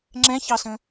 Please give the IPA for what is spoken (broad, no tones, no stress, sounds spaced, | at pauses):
ŋ͡ǁ ɛ̃ ç ɑ s ə̃